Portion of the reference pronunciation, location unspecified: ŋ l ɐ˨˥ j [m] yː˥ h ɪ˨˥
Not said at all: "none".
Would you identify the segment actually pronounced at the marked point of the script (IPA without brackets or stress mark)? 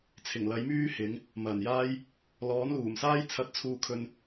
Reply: m